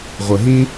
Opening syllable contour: low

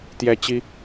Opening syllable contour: high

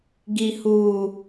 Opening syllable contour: low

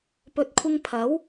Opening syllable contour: low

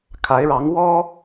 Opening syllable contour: rising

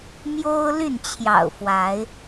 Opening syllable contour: high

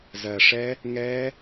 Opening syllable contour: low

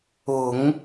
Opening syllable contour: low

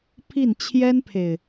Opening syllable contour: falling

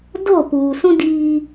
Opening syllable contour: falling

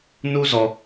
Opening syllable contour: high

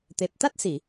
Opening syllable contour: low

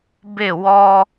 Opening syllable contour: falling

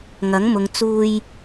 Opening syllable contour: rising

